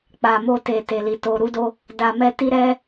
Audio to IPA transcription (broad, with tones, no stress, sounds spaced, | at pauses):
k͡p a˨ m o˧ t e˨ t e˨ l i˨ t o˨ ɾ u˨˦ d o˧ | d a˧ m ɛ˦ t i˦ ɾ ɛ˦